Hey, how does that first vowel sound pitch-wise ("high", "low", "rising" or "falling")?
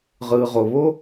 low